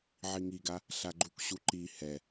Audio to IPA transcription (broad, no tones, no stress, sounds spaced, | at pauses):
ʕ i ŋ i ɡ a | ɬ a ɡ͡ǃ u k ɕ u ǃ i h ɛ